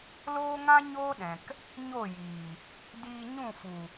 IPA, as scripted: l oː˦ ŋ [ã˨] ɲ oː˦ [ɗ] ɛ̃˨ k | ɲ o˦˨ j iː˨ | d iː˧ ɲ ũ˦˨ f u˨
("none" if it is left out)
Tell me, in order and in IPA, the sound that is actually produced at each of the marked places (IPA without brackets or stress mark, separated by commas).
ã˦, ɗ